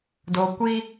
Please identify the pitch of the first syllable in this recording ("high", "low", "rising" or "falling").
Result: low